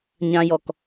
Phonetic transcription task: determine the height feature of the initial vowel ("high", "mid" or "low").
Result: low